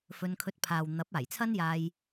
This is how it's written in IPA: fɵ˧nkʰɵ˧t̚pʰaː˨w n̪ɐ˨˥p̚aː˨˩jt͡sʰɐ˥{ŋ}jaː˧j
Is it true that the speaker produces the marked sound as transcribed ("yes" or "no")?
no